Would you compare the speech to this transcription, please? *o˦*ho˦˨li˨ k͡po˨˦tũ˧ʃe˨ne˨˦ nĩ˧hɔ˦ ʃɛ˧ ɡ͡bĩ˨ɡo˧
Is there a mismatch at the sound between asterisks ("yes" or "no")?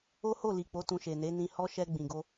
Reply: no